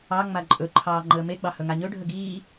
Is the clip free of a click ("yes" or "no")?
no